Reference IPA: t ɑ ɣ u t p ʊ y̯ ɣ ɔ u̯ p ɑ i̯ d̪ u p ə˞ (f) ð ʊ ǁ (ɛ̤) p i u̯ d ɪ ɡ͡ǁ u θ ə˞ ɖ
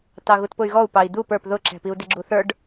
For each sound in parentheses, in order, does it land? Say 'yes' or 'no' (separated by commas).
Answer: no, yes